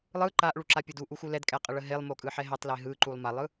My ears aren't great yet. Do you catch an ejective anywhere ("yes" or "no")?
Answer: yes